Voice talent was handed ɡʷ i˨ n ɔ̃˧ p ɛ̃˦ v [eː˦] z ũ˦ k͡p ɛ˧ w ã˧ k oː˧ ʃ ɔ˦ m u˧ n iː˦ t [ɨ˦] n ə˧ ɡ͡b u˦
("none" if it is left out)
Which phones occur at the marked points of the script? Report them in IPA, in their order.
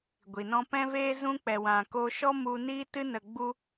eː˦, ɨ˦

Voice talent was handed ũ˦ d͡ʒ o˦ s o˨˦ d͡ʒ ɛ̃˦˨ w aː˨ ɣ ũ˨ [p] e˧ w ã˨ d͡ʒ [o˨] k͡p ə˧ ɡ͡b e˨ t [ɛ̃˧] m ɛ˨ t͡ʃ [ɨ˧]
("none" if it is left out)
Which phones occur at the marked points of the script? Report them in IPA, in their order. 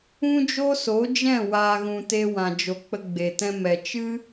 t, o˨, ɛ̃˧, ɨ˦

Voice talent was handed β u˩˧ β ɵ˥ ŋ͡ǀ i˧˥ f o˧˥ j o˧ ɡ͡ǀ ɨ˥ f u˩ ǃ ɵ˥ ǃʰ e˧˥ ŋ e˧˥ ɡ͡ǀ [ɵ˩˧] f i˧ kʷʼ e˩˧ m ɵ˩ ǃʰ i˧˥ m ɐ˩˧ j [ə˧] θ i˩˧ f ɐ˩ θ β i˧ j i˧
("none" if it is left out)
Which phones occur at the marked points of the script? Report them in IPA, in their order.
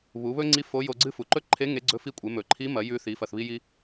ɵ˧˥, ʉ˧

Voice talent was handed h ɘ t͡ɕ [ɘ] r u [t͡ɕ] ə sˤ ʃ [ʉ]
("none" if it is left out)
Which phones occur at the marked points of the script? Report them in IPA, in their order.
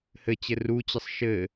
ɘ, t͡ɕ, ɘ

